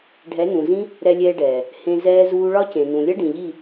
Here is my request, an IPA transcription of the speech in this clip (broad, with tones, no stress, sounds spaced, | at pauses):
ɖʱ ɛ˨˦ n ũ˨ z ĩ˦ | ɾ ɛ˧ lʲ ɛː˧ ɖ ɛː˨ | h ẽ˧ z ɛː˦ z uː˦ ɭ ɒ˦ c ẽ˨ n ũ˨ lʲ ʌ˦ ɖ ĩ˨ ʎ i˦˨